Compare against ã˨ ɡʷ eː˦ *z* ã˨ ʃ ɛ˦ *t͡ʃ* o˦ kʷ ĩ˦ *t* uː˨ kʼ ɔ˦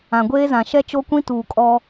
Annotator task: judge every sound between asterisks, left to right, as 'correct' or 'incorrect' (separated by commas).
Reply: correct, correct, correct